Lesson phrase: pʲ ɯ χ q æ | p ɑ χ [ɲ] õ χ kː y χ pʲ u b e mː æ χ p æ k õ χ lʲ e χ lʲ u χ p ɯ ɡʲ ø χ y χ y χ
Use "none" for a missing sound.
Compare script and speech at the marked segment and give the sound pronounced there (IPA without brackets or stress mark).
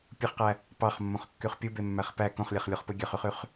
mː